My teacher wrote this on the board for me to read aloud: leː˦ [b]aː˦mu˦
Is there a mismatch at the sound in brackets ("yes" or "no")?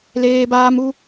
no